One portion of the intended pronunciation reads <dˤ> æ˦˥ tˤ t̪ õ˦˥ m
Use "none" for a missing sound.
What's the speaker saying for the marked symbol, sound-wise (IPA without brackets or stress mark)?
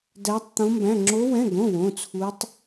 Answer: d